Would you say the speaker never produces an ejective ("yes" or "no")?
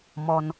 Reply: yes